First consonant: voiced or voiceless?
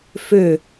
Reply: voiceless